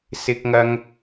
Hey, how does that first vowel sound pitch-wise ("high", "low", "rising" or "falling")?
high